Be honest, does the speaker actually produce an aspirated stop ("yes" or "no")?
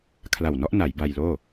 yes